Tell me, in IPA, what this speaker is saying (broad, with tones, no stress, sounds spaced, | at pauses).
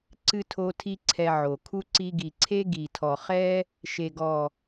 ǀ ɨ˧ tʰ o˧ tʰ i˧ ǀʰ ɛ˧ ʕ o˨ kʰ u˦ ǀ i˧ ɡ i˨ ǀʰ e˦ ɡ i˨ tʰ ɔ˨ χ ɛ˦ | ʃ e˨ ɡ ɔ˨